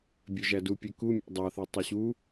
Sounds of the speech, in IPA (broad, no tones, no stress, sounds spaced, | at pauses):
bʲ ø ʒ æ d u pʲ ø k u mʲ ɑ̰ dˤ ɑ θ e tˤ ø ɕ u